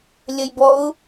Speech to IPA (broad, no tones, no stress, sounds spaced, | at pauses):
lʲ ɐ j b ɔ ʊ̯